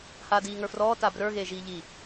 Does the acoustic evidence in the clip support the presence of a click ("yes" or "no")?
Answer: no